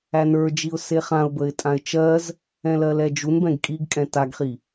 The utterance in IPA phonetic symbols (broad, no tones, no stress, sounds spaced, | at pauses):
æ n ə˞ d͡ʒ i ʊ̯ s e χ ã ʊ̯ b ə ɪ̯ tʼ ã ɪ̯ t͡ʃ ɜ z | ɛ̃ l ɜ l ɛ d͡ʒ u n b ɛ̃ ɡ kʼ i ɡ kʼ ɛ̃ t a ɡ χ i